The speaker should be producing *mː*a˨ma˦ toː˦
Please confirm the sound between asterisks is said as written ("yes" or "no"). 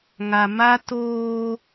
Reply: no